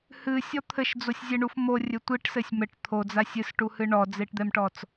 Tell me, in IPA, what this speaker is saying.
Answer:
h ɨ sʲ ɔ t̪ʰ ɘ ʃ d͡z o sʲ zʲ ɛ ɳ u f m o rʲ ɘ tʷ i ʈ s ɘ sʲ m ɘ ʈ t̪ʰ o d͡z a sʲ ɨ s ʈ u h ɨ ɳ ɔ d͡z e ʈ d̪ ɛ m ʈ ɔ t͡s

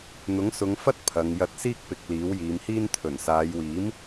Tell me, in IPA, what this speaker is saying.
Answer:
n̪ ʊ˨˥ ŋ s ʊ˨˧ ŋ f ɐ˥ t̚ pʰ ɐ˨˧ ŋ j ɐ˧ t̚ s iː˥ k̚ p ɪ˨ k̚ l iː˨˥ w j iː˨˧ m h iː˥ n t̪ʰ ɵ˨˩ n s aː˨˧ j w iː˨˥ m

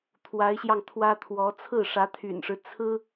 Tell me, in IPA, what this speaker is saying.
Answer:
t̪ʰ w a˧˥ ɪ̯ ɕ j ɑ˧ ŋ t̪ʰ w ä˥ t̪ʰ w ɔ˧˥ t͡sʰ ɹ̩˥˩ ʂ ä˧˥ t̪ʰ y̰˨˩ n ʂ ɻ̩˦ t͡sʰ ɹ̩˥

